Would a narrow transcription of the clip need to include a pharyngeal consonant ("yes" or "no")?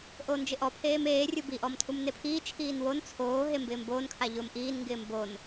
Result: no